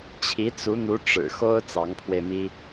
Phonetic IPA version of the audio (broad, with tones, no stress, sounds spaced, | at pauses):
t͡ɕʰ i˧˥ t͡s u˧˥ n̪ u˧˥ ʈ͡ʂ ɻ̩˨˩ x o˥ ʊ̯ t͡s ɑ˧˥ ŋ pʰ w e˧ ɪ̯ m i˥